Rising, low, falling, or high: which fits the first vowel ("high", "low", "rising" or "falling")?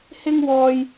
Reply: high